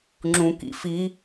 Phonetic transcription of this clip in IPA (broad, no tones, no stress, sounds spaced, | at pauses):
ŋ͡ǁ ũ k ḭ f i